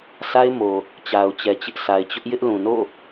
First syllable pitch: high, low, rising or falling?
high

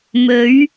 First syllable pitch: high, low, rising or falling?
rising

